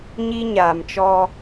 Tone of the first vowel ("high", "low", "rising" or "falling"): high